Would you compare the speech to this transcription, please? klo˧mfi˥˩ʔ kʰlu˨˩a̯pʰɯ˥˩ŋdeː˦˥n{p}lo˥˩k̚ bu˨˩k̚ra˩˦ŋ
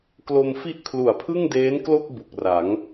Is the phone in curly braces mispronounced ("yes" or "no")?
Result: yes